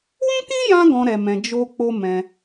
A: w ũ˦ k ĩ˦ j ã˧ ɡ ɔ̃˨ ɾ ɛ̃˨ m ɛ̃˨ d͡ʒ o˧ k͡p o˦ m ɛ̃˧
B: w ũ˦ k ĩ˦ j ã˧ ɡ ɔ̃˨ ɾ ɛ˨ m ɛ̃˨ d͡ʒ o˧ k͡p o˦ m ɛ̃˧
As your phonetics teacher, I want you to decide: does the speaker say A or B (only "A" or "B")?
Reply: B